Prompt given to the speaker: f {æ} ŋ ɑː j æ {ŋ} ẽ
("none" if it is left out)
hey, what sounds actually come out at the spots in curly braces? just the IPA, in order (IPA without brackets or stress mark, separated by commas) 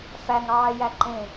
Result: æ, ǃ